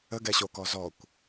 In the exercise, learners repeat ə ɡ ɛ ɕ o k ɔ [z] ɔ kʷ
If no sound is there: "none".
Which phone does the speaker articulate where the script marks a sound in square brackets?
z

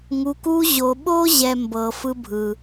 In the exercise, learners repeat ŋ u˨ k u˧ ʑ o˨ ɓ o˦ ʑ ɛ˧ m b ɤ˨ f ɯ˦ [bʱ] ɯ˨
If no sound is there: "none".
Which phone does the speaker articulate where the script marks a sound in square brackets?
bʱ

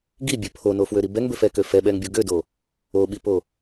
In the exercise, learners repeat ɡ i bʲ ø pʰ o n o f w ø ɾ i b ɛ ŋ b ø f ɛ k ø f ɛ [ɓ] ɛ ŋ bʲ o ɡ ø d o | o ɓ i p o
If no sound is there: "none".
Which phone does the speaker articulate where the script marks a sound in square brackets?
ɓ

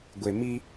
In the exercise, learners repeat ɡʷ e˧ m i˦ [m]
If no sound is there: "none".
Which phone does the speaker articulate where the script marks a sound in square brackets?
none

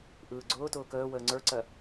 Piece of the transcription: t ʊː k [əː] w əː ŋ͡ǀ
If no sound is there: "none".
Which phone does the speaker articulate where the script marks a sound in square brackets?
əː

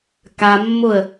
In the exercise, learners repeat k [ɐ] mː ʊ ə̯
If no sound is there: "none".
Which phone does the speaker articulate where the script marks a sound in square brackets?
a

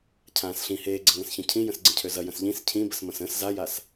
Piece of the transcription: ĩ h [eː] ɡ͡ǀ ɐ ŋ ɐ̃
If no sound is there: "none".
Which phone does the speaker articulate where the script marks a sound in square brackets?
eː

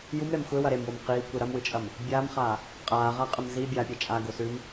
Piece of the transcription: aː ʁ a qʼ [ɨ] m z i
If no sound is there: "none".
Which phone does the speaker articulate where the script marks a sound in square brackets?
ɨ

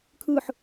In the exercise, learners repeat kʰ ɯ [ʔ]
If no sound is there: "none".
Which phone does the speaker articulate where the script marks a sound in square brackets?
ħ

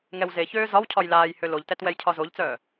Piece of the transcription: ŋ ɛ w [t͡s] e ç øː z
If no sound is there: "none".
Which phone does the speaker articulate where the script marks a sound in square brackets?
z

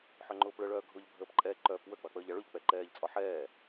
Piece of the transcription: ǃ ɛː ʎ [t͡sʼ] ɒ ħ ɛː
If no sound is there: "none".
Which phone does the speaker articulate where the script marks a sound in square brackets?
t͡sʼ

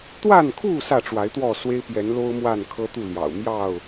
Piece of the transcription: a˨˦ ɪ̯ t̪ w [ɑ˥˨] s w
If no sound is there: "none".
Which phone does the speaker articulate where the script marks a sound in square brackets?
ɔ˥˨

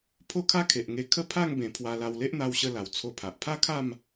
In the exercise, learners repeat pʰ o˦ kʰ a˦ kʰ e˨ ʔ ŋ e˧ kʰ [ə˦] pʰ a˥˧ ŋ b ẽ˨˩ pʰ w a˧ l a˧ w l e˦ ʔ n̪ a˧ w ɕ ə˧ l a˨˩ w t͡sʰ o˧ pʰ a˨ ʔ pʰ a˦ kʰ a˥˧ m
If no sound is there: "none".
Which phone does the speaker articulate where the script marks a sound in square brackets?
ə˦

